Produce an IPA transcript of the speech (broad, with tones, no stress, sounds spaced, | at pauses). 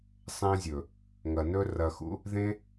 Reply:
sˤ ẽ˧ zʲ ɵ˨ | ŋ ɐ˨ n ɵ˦ r ɐ˧ x ṵ˦ | ð ẽ˦